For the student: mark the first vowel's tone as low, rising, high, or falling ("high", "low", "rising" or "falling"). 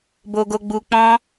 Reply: low